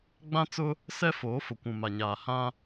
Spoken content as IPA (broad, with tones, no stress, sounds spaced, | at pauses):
ɡ͡b ã˦ t͡s ʊ˦ | s ɛ˦ f oː˨˦ f ʊ˨ kʷ ũ˨ m a˨ ɲ aː˨ h ã˦